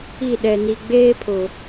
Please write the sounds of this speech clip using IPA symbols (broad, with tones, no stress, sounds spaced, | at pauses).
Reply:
i˦˨ ɗ ɛ˨ n i˨ ɡ͡b eː˦ pʰ ʊ˨